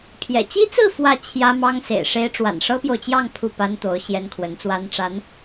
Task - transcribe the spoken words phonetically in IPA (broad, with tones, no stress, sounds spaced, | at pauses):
pʰ j ɛ̰˨˩ t͡ɕ i˥ t͡s ɹ̩˥˧ f w ä˥˩ t͡ɕʰ j ä˥ m ɑ˥ ŋ s ḛ˨˩ ɪ̯ ʂ e˥ ɪ̯ ʈ͡ʂ w a̰˨˩ n ʂ ɤ˥ p j o˨ ʊ̯ t͡ɕ j ɑ˥˧ ŋ pʰ u˥˩ p a˥ n t̪ o˧˥ ʊ̯ ɕ j ɛ˥ n kʰ w ə˧˥ n t͡s w a˥ n ʈ͡ʂ a˧˥ n